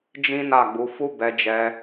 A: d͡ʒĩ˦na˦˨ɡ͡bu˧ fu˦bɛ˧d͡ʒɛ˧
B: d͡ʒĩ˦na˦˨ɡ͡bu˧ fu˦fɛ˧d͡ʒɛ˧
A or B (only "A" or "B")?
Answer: A